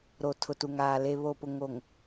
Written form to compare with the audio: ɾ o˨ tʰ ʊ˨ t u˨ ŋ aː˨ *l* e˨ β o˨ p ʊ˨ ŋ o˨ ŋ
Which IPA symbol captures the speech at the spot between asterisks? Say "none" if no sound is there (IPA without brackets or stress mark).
l